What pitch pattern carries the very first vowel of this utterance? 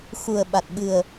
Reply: low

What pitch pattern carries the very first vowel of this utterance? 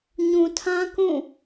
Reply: low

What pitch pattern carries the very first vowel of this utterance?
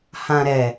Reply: low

